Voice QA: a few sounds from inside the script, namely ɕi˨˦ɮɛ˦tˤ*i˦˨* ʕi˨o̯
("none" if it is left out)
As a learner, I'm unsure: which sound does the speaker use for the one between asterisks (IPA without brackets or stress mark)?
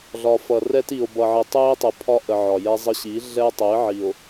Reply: i˨˦